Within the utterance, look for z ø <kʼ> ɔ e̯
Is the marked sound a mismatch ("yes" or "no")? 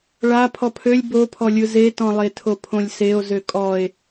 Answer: no